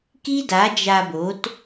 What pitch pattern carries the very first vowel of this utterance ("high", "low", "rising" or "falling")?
high